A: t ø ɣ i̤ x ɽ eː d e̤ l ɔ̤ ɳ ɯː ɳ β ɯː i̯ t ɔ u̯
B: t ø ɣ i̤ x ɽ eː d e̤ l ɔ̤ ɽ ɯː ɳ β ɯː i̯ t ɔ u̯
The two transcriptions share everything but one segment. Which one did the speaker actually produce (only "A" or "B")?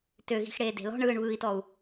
A